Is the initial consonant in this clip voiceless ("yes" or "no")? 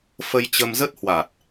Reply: yes